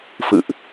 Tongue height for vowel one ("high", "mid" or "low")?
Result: high